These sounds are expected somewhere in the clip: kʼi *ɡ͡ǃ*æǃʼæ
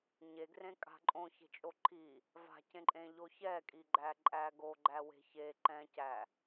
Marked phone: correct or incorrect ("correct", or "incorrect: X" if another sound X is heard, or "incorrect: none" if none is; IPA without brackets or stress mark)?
correct